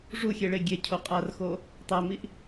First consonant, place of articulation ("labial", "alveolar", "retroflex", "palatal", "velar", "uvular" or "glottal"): retroflex